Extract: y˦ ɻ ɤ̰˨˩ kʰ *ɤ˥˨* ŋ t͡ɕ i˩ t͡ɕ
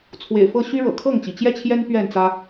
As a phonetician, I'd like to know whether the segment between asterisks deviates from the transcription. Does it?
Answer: no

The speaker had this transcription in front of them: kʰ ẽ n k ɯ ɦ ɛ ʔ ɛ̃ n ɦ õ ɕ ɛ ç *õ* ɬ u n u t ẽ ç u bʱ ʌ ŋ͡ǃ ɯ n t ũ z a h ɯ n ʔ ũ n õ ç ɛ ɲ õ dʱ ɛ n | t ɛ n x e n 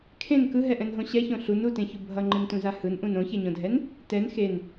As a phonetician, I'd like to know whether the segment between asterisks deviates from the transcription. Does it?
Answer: no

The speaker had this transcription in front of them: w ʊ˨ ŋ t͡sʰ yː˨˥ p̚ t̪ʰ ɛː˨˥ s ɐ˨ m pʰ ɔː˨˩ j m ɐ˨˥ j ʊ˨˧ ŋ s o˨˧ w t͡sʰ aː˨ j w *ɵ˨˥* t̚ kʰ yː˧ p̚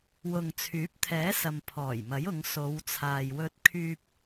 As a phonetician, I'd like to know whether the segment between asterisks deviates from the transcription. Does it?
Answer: yes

